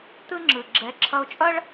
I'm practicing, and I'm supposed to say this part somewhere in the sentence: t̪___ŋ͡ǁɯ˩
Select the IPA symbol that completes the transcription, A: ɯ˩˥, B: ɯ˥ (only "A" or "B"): B